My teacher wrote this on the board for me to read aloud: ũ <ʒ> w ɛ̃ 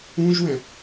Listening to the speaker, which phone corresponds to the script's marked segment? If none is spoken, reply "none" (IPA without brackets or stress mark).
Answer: ʒ